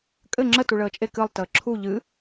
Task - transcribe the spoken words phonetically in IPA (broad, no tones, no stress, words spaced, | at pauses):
kʼɘ ŋ͡ǁə tuɭəːt͡ʃʼe kɨlˠ təːǁʰu ʎɨ